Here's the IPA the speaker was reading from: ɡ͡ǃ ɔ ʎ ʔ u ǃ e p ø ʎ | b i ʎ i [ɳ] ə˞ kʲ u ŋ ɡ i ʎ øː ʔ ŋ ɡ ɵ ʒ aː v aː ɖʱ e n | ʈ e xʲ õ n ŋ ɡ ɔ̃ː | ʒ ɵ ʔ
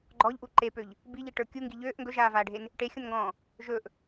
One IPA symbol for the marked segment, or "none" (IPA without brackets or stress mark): ʈ